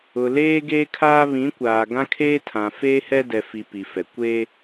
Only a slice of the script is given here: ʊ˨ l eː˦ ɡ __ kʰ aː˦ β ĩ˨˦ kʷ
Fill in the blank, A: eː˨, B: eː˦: B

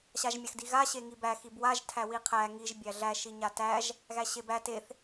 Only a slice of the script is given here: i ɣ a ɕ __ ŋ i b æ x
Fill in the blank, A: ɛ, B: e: B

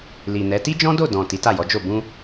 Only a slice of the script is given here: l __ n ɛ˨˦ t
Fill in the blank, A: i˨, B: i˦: A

